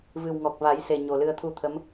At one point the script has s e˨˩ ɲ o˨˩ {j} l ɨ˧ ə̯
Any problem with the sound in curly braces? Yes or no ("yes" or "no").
yes